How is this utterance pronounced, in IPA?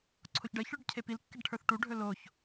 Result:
ǀʰoçɖɜçɭʊɖ cʰepilkːeɖ ʈʰə˞θʈuɖʱɵ loç

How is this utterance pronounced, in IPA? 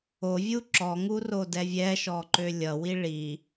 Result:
ovʲu ǁɔŋurodɛ vʲɛʃɔǃø lʲʌwi ɭi

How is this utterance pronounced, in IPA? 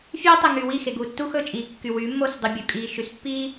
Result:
fʲeː˦tˤe˨ŋy˨ wi˦˨xe˨ɡuː˨ tːu˦xɵ˦˨t͡ʃʼiː˨kːy˨ wy˨˦mːo˦˨s dˤy˨bʲo˨kʼiː˨ ʃy˨spːiː˦

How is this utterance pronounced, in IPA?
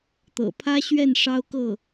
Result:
t̪ɤ̰˨˩pʰä˥ɕɥɛ˥˩n ʂɑ˥ʊ̯kɤ˥˩

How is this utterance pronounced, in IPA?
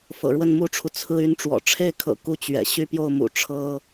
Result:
fɤ̰˨˩ɻwə˥˩nmu˥ʈ͡ʂʰu˨ t͡sʰɹ̩˥y˥n ʈ͡ʂwɔ̰˨˩ʈ͡ʂʰe˥˩ɪ̯kʰɤ̰˨˩ ku˥˩t͡ɕɥɛ̰˨˩ ɕy˥˧pjo˥˩ʊ̯mṵ˨˩ ʈ͡ʂʰɤ˥

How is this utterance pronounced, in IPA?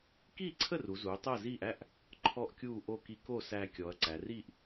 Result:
kiː˥˩ǀʰə˥˩ru˩˧zuː˩˧ tˤəː˥˩ziː˥˩ʔ æ˥˩ʔ | ǃʰɔ˥˩ʔkʲuː˥˩ʔo˥˩ ki˧ko˥˩ sæ˧ kʲɔ˩˧ɐ̯ǀæ˩˧riː˥˩ʔ

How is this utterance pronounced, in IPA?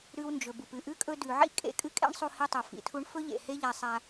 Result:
ɾʉ˦wnd͡ʒɵ˨bu˨p ɨ˨ʔʉ˦ kʼɵ˧dʉ˨ʕḭ˦ kʼḛ˧kʼɨ˦kʼḛ˦ɳ sˤu˧hi˧tˤo˨ fḭ˨tʰu˦ɳ fɵ˦ʎḛ˨ he˦ʎa˧sˤa˧

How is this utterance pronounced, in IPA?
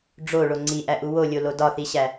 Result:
ɖ͡ʐoɭo ŋ͡ǀiʔæʔu wolʲolo dɒθiɕæ

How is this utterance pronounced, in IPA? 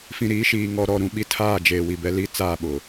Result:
fĩ˨ɾiː˨˦ʃiː˨ ŋɔ˨ɾɔ˨ɾũ˨ ɓi˦tʰaː˦˨d͡ʒeː˨ wi˨bɛ˦li˦ t͡saː˦˨ɓʊ˨

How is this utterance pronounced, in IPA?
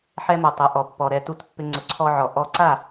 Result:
ħɛ˧mʊ˩tˤɪ˩ ʔɔ˩pːɔ˩ ɾɛ˥˩tu˥˩tpːɪ˧ ŋ͡ǀʊ˩˥ǀʰɔ˧ʕɔ˩ ʔɔ˧ǀa˥˩

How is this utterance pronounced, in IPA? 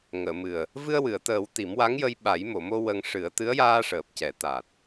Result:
ŋəː˨˩˨mɨ˨˩ə̯ | vɨ˧ə̯wɨ˨˩˨ə̯t̪əː˨˩˦w t̪i˨˩˦mwa˧˥ŋjə˧j ɓa˨˩˦jmo˨˩˨mo˧ wə˧ŋ ʂɨ˨˩˦ə̯ t̪ɨ˧˥ə̯jaː˧ʂəː˨˩p̚cɛ˨˩˦ t̪a˨˩t̚

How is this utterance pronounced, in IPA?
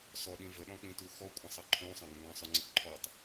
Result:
sɔɗĩ vəɗɔ̃k͡pĩtu xɔkʷʼə̃sˤʌ ǃʰũsˤɑ̃ɡə̃ ɡɑ̃sˤʊŋ͡ǀə ǃʰɔtˤ

